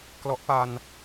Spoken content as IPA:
k l ɔ˦˥ ʔ p a˧ n

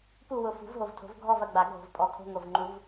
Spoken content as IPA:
p u˦˨ w ʊ˨˩ f ṳ˨˩˦ v ɦ o˨˩ v tʰ o̤˨˩˦ v ɡʱ ɔ˦˨ v ɐ˦˨ ɡ͡b a˨˩˦ ɡʱ o̤˨˩ v pʼ ɔ˨˩ kʰ o̤˧˥˧ ŋ o˨˩ v ŋ͡ǃ u˨˩˦ v

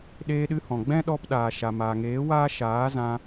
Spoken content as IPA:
ɗ eː˧ ɗ ɨ˧ h ɔ̃˨ ɡ͡b ɛ̃˦ ɗ ɔ˧ p ɗ aː˨ ʃ a˨ m aː˨ ŋ eː˨˦ w aː˦ ʃ aː˨˦ z ã˧

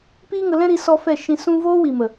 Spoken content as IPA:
p iː˦ ŋ ə˧ l ɛ̃˦ ɾ i˧ s ɔ˧ f ɛ˦˨ ʃ ĩ˧ s ũ˦ v oː˦ w i˨ m ə˨

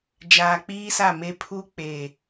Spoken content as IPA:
d͡ʒ aː˨ k͡p iː˦ s a˦˨ m e˦ pʰ u˦ k͡p eː˨

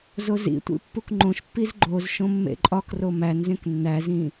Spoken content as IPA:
z o z ḭ tʷ ḭ pː u k ŋ͡ǃ õ ʃ pː i z ɡ͡ǃ o z ʃ õ mː ḛ ǃʼ ɒ k r o m æ n z ẽ k nː æ z ĩ

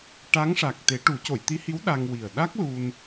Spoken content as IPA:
ʈ a˧˥ ŋ ʂ a˨˩ k̚ t̪ e˨˩˦ ʈ u˨˩˦ c o˨˩˨ j t̪ i˧˥ h i˧˥ w ɗ a˧ ŋ w i˨˩ ə̯ ɗ a˦˥ k̚ l u˧ n

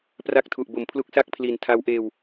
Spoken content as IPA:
p r a˦˥ k̚ tʰ u˨˩ ʔ b o˨˩ m pʰ l u˦˥ k̚ s a˥˩ k̚ pʰ l i˨˩ n tʰ a˦˥ w ʔ eː˧ w

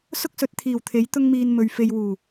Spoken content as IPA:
s ʊ˥ k̚ s ɵ˨˥ t̚ t̪ʰ iː˨˩ w t̪ʰ e˨˥ j t̪ ʊ˥ ŋ m iː˧ n m ɵ˨ ɥ f e˧ j w uː˨˩

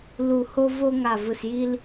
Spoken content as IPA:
l u˧˩ h o˦ v o˦ ŋ a˧˩ v ɯ˧˩ s j i˦ l

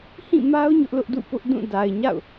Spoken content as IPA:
h ĩ˦˨ m a˦ ʊ̯ ɲ ʊ˦ ʔ l ʊ˦ ʔ d ṵ˦˨ p ʊ˦ ʔ d ũ˦˨ d a˨ ɪ̯ ɲ a̰˦˨ ʊ̯

